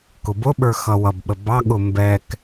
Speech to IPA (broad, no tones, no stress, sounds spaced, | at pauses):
k ʊ b ʊ ɓ ə˞ x ʌ w ʌ b ɓ ə b ɑ ɠ ʊ m b ɛ k